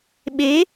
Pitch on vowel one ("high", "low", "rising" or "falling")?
rising